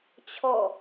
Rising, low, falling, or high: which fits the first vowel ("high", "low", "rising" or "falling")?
falling